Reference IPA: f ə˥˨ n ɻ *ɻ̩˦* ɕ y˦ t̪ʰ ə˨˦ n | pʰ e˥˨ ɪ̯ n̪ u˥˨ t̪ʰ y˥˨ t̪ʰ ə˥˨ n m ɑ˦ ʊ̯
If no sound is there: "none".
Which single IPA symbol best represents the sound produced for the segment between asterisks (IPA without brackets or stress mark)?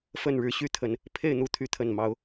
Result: ɻ̩˦